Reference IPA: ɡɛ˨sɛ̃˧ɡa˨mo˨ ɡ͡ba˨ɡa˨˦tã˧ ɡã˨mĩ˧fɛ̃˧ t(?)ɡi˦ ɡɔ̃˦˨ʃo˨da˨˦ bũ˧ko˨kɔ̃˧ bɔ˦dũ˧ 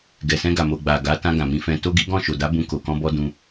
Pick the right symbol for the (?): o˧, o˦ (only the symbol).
o˦